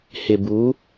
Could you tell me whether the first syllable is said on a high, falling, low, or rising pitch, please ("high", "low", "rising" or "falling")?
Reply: low